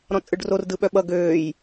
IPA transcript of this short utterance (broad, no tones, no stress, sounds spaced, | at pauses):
ɾ ɔ̃ t͡sʼ ɯ ɖ r o r d ɯ ɓ œ ɓ ʌ ɡ øː j